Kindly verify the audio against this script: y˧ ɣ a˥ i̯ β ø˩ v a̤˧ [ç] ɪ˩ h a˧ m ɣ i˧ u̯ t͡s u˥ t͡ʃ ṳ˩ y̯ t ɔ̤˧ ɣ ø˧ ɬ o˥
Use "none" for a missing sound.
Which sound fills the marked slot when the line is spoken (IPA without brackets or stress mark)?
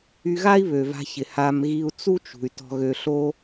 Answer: ç